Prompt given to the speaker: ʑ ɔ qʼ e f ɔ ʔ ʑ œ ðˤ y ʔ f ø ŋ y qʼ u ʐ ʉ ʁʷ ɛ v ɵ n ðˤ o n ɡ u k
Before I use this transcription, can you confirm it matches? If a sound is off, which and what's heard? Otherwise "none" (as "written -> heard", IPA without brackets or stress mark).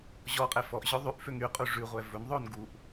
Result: k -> ʔ